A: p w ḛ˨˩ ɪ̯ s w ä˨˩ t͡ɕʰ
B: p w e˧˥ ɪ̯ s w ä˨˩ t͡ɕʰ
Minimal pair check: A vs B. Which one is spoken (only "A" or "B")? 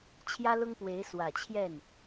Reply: B